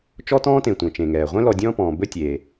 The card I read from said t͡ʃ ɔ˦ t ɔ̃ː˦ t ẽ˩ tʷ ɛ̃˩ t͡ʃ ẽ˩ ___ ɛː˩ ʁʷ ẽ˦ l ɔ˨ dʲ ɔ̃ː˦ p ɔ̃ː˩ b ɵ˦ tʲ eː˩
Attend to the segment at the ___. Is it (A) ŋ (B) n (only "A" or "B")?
A